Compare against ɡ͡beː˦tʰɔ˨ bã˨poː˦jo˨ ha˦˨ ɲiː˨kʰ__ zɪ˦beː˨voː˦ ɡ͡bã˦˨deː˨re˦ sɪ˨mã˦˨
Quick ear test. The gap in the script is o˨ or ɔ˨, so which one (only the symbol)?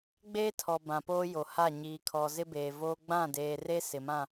ɔ˨